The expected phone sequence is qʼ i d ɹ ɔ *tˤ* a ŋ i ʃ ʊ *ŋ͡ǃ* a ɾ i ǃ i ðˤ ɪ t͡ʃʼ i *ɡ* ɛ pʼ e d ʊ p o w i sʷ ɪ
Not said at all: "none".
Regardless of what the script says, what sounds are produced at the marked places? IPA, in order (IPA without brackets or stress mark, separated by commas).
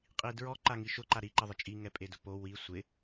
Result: ǃ, ǃ, ŋ